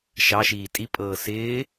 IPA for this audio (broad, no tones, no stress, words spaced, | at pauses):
ʃɑʃiː tʼipʼɤː sɪː